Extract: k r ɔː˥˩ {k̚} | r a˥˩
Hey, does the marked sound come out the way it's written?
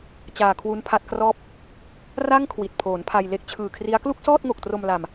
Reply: no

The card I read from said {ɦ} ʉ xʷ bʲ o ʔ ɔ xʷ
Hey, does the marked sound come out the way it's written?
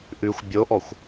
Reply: no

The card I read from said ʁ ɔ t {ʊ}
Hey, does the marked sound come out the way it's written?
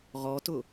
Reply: yes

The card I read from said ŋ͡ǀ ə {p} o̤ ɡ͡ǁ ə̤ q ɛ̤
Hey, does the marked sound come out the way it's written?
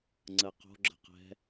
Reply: no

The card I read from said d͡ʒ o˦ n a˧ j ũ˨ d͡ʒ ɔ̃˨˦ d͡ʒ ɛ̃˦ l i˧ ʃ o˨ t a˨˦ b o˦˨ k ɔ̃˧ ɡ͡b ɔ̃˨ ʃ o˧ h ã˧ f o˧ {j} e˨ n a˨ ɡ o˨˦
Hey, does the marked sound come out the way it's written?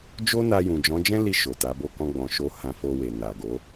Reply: no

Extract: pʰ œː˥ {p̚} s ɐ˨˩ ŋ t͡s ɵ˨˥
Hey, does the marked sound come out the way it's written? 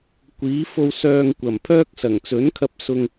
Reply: no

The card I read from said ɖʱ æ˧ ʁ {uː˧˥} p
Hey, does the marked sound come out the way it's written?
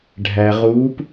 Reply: yes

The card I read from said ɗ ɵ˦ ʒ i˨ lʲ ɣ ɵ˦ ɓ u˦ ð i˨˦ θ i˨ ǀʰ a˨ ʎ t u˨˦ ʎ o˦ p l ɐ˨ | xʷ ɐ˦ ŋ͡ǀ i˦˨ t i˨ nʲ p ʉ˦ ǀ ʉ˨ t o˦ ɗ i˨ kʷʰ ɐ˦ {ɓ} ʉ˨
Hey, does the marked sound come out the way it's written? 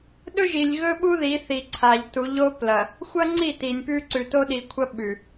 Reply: yes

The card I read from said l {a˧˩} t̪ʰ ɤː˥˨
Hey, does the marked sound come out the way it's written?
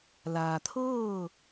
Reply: no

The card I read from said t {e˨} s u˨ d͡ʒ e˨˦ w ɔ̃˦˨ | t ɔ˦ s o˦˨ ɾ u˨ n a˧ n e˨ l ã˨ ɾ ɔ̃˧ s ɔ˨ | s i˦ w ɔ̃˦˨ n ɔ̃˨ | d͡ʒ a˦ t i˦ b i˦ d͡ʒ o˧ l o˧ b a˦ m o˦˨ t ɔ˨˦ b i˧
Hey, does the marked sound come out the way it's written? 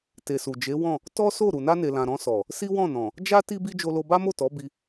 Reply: yes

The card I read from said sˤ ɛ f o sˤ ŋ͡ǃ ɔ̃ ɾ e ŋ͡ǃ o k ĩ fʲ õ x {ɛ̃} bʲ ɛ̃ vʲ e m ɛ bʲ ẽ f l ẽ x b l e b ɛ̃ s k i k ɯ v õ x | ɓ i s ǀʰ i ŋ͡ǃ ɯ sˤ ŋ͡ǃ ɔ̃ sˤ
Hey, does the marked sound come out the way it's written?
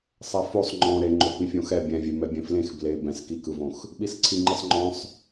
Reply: no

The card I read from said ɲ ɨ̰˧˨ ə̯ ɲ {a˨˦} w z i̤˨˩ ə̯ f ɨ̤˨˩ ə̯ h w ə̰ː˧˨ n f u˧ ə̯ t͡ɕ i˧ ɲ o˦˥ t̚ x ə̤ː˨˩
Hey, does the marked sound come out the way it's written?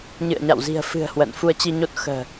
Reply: no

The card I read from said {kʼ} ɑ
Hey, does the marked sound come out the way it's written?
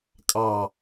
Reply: yes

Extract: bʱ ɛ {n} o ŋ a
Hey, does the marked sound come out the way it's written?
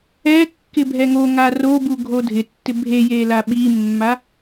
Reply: no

